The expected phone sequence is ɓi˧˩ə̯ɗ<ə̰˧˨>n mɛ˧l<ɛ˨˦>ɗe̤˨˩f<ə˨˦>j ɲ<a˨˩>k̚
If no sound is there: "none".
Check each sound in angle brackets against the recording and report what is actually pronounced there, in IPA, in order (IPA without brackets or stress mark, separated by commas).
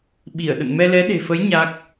ə̰˧˨, ɛ˨˦, ə˨˦, a˦˥